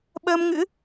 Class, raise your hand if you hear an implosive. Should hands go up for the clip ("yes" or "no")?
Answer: yes